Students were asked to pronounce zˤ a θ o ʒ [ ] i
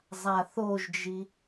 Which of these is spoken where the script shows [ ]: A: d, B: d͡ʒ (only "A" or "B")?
B